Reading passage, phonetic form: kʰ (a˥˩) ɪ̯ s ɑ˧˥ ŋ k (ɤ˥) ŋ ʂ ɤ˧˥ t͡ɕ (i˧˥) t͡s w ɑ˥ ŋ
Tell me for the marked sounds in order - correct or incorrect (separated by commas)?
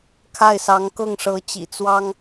correct, incorrect, incorrect